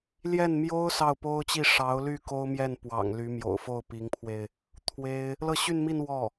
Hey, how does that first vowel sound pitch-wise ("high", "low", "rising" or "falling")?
falling